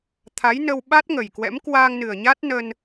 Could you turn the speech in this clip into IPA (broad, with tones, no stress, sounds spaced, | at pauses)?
t̪ʰ a˨˦ j n ə˧ w ɓ a˦˥ t̚ ŋ ə˨˩ j k w ɛ̰˧˥ m k w aː˧ ŋ n ɨ˨˩ ə̯ ɲ a˦˥ t̚ n ə˧ n